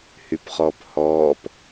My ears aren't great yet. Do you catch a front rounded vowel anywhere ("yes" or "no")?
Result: yes